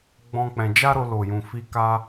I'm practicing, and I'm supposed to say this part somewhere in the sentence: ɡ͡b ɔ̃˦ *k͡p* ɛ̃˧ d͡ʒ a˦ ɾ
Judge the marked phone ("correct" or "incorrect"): correct